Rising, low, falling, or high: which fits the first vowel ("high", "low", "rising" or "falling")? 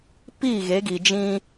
falling